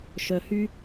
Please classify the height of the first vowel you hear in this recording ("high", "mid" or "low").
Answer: mid